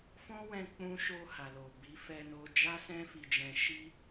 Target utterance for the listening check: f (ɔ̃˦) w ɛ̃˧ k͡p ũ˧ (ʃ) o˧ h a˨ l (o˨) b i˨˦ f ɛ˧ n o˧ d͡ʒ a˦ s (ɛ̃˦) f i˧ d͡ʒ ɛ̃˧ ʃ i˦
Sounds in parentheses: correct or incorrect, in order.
correct, correct, correct, correct

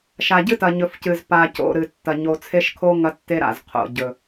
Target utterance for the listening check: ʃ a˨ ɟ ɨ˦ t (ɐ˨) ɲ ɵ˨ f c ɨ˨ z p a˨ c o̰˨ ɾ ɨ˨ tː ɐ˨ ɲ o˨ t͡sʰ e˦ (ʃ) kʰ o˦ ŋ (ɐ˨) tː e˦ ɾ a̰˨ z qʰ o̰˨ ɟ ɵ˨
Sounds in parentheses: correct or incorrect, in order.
correct, correct, incorrect: ɐ˦

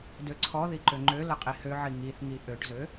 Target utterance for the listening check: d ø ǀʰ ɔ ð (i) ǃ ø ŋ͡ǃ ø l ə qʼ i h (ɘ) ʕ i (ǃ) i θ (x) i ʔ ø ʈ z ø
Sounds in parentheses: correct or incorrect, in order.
correct, incorrect: ø, incorrect: ŋ, incorrect: ŋ

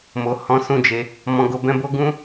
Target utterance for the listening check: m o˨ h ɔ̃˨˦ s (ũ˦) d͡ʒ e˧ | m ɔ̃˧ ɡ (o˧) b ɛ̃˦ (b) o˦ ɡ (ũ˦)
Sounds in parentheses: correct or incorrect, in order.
incorrect: ũ˦˨, correct, correct, correct

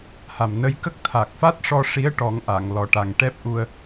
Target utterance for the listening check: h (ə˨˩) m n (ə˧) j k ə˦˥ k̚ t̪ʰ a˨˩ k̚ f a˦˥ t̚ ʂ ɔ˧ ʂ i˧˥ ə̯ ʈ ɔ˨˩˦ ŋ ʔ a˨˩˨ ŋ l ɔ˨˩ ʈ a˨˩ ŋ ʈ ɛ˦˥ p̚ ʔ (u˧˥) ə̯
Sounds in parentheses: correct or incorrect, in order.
incorrect: a˨˩, correct, incorrect: u˧

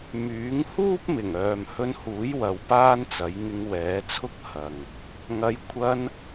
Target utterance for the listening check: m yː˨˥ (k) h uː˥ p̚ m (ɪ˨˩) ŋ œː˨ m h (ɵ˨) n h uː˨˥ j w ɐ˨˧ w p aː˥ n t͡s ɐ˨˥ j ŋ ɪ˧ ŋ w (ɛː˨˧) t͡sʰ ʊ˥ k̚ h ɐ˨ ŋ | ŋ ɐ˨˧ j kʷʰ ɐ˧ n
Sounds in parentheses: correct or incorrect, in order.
incorrect: ŋ, correct, incorrect: ɵ˧, incorrect: ɛː˨˥

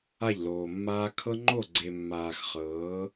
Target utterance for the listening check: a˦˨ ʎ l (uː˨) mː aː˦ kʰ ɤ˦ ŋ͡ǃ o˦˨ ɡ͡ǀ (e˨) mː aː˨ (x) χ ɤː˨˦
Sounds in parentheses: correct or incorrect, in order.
incorrect: oː˨, correct, correct

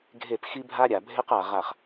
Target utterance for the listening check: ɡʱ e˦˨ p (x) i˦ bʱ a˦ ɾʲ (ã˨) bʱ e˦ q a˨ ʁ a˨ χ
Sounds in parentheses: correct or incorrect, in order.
correct, incorrect: a˨

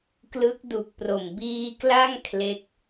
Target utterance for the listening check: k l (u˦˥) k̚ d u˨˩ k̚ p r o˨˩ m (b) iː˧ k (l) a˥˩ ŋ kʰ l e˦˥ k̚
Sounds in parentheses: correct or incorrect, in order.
incorrect: ɯ˦˥, correct, correct

